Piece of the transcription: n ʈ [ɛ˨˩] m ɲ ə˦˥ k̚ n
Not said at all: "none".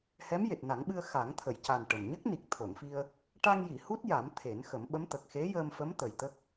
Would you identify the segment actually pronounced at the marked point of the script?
ə˨˩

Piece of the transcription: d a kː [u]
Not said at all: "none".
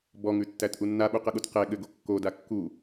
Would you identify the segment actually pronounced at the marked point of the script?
u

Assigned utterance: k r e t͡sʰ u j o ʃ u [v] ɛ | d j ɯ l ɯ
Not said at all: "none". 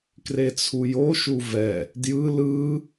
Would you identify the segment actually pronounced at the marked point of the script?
v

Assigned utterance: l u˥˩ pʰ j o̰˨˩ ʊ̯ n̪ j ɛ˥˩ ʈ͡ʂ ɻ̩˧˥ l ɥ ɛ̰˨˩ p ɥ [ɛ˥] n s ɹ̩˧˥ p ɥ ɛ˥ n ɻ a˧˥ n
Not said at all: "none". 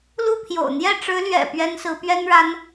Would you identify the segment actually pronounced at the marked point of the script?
ɛ˥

